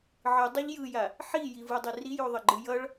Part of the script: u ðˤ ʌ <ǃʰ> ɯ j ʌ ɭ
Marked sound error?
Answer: yes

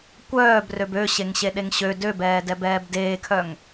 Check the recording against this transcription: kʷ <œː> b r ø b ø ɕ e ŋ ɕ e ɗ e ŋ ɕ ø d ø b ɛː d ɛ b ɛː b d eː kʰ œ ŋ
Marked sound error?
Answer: no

